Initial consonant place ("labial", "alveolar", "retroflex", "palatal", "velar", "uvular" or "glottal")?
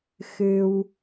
velar